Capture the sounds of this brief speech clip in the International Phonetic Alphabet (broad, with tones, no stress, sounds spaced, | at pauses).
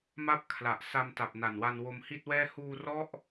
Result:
m a˥˩ p̚ kʰ l a˨˩ ʔ s a˧ m t a˨˩ p̚ n a˨˩ n w a˧ n w o˧ m h i˥˩ t̚ w ɛː˥˩ h uː˧ r ɔ˦˥ ʔ